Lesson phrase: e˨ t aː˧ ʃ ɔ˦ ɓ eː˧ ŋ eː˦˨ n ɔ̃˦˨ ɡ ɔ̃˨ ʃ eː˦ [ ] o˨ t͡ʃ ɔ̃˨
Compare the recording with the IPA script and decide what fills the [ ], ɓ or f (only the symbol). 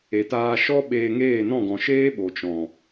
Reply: ɓ